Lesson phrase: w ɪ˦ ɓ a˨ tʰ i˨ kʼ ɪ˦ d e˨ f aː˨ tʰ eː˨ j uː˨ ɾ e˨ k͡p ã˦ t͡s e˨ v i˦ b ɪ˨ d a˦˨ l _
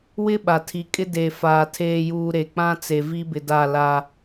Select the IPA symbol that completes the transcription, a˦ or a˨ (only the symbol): a˦